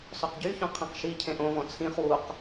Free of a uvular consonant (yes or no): no